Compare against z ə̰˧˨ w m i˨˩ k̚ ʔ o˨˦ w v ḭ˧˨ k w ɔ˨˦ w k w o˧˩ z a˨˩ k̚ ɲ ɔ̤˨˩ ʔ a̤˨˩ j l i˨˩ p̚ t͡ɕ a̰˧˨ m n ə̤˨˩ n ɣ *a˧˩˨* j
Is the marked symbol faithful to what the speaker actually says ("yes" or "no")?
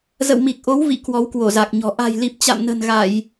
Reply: yes